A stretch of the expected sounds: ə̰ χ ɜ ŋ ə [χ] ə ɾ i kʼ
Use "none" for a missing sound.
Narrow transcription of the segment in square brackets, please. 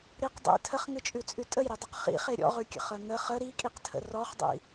χ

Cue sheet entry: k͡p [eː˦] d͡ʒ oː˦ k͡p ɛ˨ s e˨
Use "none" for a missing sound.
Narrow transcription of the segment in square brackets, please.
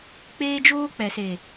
eː˦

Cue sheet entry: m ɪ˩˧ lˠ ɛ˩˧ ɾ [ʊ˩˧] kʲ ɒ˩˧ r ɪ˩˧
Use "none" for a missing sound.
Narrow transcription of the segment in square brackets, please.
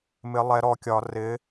ɔ˩˧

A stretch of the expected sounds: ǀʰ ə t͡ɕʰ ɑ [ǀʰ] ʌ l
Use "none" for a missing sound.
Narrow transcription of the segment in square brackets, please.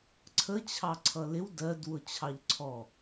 ǀʰ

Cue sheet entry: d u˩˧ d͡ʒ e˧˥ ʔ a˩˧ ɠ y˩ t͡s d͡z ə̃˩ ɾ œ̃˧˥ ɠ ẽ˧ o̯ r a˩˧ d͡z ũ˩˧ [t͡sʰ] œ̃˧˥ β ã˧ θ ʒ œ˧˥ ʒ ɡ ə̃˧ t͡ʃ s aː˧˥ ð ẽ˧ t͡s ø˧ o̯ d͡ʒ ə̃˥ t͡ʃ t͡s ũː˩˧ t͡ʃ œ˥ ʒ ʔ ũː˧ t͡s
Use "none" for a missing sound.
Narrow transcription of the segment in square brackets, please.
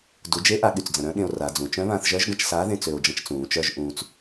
t͡ʃ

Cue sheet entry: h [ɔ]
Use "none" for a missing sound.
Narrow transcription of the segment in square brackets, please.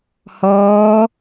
ɔː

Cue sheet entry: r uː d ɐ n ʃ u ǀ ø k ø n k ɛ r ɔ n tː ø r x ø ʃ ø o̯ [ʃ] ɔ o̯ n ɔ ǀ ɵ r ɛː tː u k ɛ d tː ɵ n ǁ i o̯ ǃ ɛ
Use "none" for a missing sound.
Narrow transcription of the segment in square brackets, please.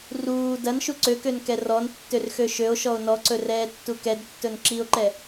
ʃ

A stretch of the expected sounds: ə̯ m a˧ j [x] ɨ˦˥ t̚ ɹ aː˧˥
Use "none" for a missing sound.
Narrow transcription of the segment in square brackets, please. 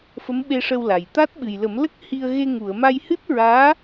h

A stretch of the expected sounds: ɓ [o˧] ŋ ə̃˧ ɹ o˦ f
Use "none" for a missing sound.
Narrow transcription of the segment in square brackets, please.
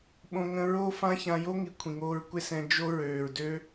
õ˧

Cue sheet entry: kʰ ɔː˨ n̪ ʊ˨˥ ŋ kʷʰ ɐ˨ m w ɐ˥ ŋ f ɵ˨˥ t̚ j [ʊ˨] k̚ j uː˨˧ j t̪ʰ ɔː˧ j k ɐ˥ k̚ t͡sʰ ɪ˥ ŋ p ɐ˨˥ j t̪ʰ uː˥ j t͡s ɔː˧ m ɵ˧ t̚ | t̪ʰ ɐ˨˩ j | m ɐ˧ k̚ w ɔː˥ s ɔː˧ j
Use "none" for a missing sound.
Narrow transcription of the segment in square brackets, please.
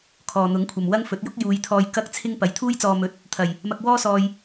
ʊ˥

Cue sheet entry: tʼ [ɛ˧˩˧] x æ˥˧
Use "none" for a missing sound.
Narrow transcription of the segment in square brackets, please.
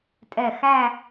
ɛ˧˩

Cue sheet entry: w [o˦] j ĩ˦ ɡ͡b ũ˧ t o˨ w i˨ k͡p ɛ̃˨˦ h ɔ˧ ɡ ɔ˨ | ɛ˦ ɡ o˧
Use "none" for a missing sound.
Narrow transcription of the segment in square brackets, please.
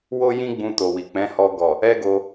o˦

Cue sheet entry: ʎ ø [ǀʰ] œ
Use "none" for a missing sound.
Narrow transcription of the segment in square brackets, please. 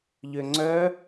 ŋ͡ǀ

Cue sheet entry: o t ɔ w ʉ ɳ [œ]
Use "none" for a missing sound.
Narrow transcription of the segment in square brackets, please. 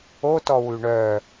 œ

